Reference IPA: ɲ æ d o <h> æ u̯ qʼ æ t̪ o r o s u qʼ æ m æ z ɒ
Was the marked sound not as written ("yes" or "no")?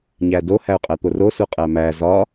no